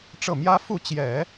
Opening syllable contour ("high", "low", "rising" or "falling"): falling